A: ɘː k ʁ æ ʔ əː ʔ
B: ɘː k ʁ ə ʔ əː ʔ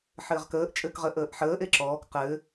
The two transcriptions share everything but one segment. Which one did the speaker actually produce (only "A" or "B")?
B